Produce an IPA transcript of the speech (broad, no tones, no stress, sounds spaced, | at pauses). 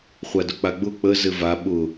χʷ a d ʊ k͡p a ɡ͡b ʊ k͡p ə z ɘ v a ɓ ʊ